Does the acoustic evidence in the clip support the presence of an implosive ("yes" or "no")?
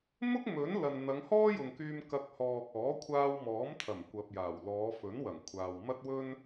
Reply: no